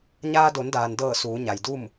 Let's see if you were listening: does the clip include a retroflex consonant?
no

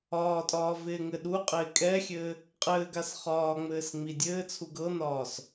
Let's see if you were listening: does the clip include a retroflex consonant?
no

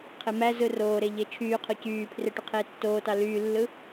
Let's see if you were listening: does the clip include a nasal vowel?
no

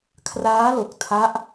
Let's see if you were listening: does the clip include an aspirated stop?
yes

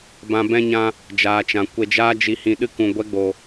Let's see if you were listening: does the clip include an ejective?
no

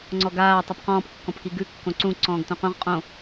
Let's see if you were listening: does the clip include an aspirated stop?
no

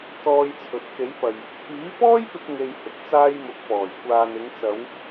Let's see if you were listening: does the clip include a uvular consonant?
no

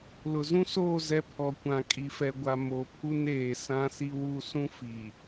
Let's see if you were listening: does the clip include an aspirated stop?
yes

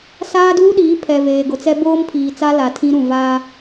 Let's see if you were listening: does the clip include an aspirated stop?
yes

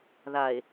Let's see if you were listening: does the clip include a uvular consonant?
no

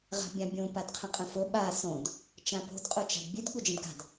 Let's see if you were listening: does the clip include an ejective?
yes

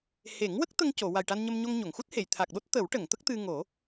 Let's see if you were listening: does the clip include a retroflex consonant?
yes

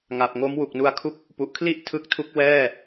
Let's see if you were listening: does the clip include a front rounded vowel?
no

